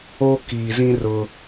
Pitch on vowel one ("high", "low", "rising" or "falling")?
high